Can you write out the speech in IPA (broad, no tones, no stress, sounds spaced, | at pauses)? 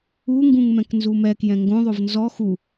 u ŋ ɡ ũ ŋ m ɛ̃ k n z u m ɛ k j ɛ̃ ŋ ɡ õ ðˤ o v n z ɔ x u